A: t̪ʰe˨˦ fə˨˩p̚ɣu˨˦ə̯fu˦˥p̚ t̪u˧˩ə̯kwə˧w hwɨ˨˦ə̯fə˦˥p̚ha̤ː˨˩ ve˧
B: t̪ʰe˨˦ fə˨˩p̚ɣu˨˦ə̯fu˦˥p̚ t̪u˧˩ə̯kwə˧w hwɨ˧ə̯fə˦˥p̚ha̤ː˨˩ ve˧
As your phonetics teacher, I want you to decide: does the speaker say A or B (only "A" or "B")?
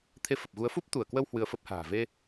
B